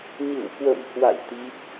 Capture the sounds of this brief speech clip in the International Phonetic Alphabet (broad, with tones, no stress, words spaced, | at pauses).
ɲɨ̰˧˨wkwə̰˧˨mhwa̰˧˨j t̪i˦˥p̚